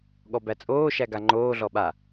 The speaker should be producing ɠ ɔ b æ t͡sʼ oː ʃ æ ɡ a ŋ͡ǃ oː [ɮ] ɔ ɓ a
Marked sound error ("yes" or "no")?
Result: no